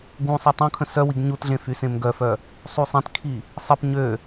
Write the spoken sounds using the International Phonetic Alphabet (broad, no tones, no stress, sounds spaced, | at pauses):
ɡ ũ sˤ i tˤ õ kʰ ə̃ s œ w i ɡ ɲ u t ɮ ẽ f y s ẽ m ɡ œ f œ | sˤ u sˤ ẽ t kʰ i | sˤ ə p ɲ ø